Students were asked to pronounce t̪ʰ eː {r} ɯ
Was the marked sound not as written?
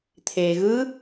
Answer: yes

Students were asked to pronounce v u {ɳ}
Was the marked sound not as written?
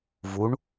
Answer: no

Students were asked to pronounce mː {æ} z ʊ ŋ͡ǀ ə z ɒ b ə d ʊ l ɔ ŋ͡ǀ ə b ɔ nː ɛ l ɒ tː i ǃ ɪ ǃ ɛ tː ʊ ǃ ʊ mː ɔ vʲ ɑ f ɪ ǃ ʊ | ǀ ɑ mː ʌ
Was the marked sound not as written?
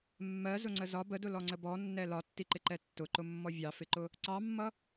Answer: yes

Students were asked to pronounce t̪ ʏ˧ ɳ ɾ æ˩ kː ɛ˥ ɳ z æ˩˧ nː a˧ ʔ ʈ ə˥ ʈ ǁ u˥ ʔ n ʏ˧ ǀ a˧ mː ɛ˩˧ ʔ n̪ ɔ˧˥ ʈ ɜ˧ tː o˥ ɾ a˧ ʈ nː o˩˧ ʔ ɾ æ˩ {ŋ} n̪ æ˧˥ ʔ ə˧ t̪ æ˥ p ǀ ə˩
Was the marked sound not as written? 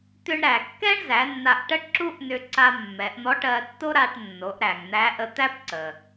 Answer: no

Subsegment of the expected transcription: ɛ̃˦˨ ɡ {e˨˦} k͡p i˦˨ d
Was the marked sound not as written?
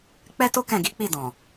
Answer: yes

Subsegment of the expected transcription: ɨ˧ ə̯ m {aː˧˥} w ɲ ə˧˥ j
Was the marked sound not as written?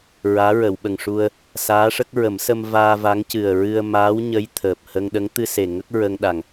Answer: no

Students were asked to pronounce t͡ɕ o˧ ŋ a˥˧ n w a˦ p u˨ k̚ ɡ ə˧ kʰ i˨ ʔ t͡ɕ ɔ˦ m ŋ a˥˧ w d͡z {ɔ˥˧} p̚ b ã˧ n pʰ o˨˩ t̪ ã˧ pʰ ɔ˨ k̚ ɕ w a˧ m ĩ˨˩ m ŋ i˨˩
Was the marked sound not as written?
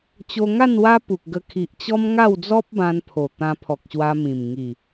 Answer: yes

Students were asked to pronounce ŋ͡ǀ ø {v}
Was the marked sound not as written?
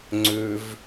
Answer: no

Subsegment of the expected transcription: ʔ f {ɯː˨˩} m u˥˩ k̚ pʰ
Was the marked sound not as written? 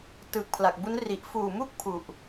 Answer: yes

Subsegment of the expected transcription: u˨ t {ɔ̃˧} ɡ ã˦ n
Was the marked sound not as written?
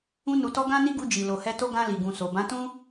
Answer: yes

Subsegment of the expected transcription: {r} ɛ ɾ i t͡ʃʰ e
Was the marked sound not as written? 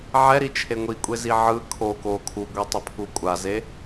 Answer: yes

